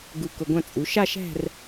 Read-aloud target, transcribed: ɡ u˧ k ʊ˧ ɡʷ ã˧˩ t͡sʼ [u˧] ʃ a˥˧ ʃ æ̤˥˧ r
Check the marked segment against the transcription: incorrect: u˩˧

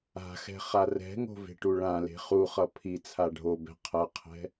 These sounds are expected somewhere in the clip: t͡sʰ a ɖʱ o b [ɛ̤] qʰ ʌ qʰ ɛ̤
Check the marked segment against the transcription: correct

